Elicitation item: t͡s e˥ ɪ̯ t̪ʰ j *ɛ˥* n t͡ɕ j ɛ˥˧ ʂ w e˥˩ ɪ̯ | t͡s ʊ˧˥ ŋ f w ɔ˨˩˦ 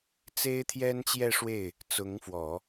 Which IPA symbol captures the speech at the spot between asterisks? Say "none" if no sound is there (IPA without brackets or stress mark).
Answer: ɛ˥